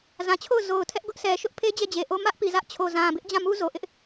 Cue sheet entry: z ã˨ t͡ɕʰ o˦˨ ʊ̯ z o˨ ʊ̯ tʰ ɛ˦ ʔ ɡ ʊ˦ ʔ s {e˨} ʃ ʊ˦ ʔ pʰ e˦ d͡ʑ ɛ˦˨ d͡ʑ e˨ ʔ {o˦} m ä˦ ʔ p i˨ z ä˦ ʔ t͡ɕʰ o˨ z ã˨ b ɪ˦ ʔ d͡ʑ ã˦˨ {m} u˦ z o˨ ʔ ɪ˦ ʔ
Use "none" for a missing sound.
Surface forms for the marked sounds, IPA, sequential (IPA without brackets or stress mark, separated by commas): ɛ˨, o˦, m